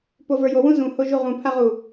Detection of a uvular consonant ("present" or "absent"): present